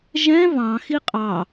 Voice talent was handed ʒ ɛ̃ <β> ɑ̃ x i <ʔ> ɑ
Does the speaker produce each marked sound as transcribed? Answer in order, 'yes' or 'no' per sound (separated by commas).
yes, no